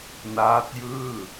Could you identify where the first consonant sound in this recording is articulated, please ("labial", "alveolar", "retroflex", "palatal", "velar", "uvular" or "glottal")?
alveolar